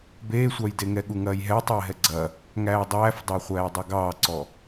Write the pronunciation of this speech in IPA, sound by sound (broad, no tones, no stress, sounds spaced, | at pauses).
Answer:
b eː sʷ ɑ j d e ŋ ɛ ɠ u ŋ ɐː j ɦ ɛː tˤ ɛː ɦ ɛ ɡ͡ǀ ɐ | ŋ æː dˤ æː f dˤ æ χʷ æː dˤ ɛ ɡ ɑː ǀ ɔ